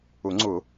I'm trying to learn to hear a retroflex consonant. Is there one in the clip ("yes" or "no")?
no